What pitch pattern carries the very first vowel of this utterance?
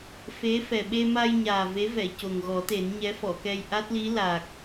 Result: rising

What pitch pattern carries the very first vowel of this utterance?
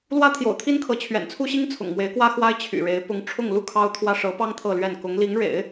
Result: high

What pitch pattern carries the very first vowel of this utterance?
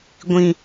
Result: low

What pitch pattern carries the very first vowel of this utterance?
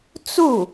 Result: falling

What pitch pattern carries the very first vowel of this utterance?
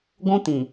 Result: high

